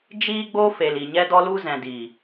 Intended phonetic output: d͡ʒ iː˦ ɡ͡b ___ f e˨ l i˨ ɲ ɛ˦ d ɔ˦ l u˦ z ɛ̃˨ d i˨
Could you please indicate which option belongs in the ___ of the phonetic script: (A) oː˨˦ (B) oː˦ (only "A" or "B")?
B